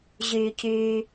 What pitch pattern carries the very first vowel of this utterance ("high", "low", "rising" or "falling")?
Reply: high